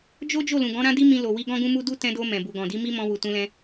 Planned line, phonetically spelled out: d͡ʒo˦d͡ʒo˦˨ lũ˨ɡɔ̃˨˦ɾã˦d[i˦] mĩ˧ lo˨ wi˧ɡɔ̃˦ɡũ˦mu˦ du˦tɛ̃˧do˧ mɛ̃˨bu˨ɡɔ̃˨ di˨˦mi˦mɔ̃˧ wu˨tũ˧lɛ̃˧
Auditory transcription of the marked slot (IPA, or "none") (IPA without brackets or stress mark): i˦